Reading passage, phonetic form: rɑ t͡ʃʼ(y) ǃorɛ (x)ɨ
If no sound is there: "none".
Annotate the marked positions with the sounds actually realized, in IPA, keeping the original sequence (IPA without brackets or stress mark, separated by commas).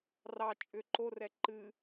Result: ʏ, ǃ